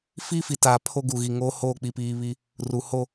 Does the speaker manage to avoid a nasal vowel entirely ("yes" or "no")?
yes